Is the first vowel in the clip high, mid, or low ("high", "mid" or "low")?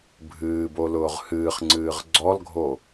high